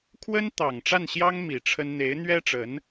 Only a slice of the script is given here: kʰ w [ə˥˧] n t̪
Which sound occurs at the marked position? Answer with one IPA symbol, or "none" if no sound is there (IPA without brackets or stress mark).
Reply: ə˥